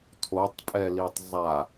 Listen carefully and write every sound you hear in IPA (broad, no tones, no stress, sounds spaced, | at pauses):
tʰ o tˤ pʼ ɛ l i tˤ zˤ a